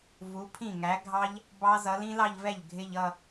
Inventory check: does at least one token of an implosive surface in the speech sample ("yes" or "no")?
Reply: no